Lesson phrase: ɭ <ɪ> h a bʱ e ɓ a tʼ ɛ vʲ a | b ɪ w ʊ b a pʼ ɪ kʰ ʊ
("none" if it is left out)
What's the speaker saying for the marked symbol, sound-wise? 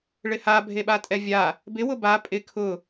ɪ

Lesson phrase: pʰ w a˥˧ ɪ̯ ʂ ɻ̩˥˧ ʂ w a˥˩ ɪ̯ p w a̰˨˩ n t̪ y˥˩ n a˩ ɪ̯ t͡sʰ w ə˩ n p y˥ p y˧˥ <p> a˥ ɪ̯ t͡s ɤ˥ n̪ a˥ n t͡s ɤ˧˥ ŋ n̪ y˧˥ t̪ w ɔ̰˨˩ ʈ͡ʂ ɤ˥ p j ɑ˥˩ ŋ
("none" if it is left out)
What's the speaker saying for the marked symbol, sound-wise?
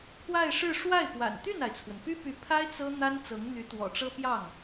pʰ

